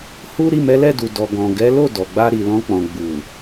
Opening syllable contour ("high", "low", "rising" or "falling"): high